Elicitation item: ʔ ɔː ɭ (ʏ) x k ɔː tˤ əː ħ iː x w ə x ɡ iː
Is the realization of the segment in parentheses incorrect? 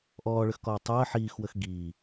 no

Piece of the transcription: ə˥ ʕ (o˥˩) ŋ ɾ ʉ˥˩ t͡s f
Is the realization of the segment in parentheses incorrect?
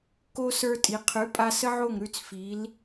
no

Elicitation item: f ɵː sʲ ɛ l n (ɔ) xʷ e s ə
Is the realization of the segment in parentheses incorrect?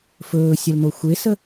yes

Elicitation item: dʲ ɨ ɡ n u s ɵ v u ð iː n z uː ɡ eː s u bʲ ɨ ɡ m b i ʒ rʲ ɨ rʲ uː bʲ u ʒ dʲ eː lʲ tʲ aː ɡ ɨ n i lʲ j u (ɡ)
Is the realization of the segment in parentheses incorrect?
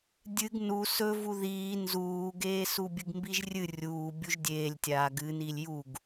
no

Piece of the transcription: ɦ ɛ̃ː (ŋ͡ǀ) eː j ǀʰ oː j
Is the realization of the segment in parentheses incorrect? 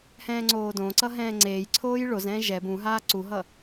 no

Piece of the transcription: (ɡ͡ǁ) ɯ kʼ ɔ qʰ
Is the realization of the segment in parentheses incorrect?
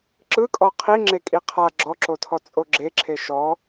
yes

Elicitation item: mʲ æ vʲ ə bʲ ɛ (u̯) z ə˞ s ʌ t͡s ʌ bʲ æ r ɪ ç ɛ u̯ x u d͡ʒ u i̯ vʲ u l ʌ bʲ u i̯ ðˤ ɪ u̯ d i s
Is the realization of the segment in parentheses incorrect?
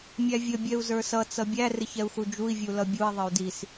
no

